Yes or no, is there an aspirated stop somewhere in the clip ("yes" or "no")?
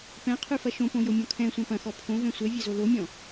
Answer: yes